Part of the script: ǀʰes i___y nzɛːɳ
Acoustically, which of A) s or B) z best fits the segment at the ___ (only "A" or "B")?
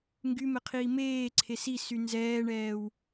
A